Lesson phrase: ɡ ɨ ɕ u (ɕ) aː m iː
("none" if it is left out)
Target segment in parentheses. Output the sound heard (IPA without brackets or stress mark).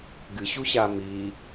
ɕ